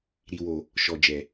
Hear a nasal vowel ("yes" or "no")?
no